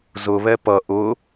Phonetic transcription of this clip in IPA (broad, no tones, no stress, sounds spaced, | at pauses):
z ʊ β ɛ p ʌ ʔ ʊ